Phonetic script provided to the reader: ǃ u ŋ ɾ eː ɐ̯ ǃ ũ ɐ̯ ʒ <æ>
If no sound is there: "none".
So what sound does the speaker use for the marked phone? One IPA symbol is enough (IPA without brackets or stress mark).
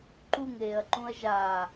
a